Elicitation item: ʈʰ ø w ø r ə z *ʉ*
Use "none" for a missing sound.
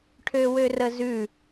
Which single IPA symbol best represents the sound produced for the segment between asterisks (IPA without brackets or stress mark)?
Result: ʉ